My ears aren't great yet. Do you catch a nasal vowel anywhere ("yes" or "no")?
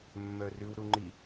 no